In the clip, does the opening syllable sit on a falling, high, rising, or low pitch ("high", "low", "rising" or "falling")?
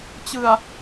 low